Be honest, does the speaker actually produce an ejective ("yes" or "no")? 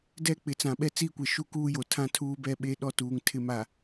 no